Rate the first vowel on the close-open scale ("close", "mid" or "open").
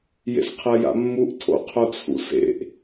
mid